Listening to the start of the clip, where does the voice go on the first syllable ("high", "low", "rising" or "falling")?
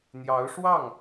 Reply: rising